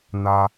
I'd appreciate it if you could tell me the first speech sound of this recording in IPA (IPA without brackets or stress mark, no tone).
n